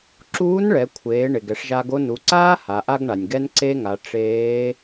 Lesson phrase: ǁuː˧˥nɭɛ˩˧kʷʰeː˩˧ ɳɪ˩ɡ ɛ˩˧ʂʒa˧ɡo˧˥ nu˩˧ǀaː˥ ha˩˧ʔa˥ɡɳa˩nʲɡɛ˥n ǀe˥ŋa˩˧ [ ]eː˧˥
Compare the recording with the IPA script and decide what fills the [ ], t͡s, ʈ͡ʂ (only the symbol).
ʈ͡ʂ